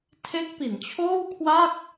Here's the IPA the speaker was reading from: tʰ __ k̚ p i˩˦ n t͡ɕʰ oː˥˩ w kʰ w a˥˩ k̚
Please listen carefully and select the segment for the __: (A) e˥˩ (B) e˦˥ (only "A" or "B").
B